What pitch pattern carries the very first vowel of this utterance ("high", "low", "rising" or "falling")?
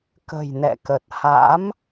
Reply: low